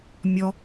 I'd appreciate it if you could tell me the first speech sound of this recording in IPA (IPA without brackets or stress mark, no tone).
mʲ